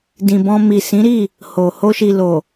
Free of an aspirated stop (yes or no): yes